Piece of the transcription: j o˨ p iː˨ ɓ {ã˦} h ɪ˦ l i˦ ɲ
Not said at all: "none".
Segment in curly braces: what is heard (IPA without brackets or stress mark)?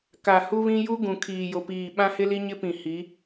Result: ã˦